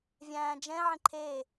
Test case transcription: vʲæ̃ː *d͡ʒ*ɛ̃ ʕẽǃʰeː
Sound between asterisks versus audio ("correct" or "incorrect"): correct